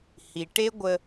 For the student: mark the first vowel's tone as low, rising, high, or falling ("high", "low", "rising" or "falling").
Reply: low